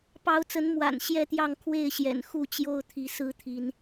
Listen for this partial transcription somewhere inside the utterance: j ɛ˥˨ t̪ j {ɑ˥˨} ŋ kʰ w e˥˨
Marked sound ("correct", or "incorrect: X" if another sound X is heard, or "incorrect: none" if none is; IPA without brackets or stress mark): correct